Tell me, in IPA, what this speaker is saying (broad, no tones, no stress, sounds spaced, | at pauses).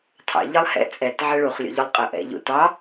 tʰ ɑ̰ ʎ ɘ lˠ h ɛ̰ t͡sʼ ɛ t ʕ ɘ ɭ u χ lʲ o̰ ʎ ʊ lˠ qʼ ə ʔ ɛ̰ ʎ ṵ t ɑ